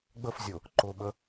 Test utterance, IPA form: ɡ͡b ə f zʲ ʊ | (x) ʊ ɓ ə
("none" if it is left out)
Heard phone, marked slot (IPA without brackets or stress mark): ǃ